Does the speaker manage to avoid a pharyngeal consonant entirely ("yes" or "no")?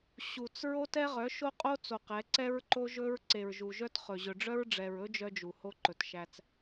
yes